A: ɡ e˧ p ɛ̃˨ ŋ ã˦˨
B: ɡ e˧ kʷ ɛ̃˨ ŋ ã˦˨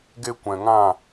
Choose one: B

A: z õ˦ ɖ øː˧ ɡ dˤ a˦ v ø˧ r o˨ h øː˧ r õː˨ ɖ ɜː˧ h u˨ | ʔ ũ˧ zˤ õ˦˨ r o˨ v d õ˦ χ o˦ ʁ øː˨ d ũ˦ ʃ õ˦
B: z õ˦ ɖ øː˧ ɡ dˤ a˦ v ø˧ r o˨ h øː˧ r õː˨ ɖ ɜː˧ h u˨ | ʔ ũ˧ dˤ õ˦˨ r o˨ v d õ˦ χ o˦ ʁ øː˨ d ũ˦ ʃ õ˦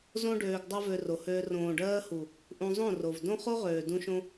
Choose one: A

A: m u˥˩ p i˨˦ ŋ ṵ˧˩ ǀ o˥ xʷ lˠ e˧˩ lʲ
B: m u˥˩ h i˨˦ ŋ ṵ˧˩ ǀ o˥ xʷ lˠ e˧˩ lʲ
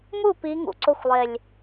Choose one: A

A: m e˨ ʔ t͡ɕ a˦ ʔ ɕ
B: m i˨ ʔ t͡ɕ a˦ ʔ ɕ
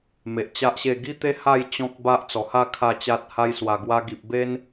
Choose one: A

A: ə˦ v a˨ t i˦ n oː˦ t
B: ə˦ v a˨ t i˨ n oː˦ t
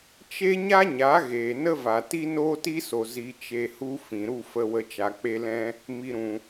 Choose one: A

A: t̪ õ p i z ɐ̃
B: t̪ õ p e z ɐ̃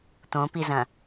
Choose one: A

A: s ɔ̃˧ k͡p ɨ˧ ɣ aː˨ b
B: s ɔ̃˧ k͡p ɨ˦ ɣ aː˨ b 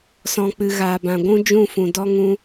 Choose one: A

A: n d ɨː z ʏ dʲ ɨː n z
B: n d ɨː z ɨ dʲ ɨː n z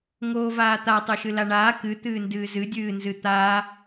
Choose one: B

